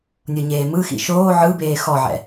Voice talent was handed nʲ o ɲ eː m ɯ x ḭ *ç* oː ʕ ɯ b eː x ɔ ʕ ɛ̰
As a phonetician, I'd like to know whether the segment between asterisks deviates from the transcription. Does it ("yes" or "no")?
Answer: yes